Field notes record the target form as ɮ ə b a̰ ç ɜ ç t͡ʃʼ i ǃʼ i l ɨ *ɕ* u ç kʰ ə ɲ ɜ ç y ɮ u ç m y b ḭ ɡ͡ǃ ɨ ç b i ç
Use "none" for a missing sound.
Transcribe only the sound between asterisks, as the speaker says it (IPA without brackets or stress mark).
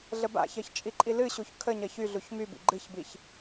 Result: ɕ